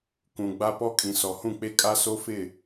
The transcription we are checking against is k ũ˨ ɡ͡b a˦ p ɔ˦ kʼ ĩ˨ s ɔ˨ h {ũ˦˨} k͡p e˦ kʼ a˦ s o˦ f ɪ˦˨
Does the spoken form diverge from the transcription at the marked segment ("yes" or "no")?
no